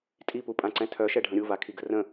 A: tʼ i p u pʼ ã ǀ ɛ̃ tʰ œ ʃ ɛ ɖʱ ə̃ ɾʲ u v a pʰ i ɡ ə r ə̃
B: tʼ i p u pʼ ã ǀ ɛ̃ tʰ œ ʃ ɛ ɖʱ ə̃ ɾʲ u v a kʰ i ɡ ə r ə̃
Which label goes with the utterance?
B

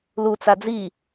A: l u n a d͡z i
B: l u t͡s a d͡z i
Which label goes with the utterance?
B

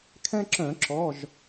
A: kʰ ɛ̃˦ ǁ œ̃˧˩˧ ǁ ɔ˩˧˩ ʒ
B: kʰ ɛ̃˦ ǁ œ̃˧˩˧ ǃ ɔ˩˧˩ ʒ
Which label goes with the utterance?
A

